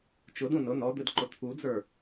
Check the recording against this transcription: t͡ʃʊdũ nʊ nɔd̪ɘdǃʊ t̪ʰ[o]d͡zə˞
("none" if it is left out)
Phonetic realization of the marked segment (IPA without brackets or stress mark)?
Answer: u